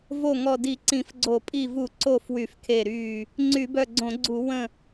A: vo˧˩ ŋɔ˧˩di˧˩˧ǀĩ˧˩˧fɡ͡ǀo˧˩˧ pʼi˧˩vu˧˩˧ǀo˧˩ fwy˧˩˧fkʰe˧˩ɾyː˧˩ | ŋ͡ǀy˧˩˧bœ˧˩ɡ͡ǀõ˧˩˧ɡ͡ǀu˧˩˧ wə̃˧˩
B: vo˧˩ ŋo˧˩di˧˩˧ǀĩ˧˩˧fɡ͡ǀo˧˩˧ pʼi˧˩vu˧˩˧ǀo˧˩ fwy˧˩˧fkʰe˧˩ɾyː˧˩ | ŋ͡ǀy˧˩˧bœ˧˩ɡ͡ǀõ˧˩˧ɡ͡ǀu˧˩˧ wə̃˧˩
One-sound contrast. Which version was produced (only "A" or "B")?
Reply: A